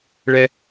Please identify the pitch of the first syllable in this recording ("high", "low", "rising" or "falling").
high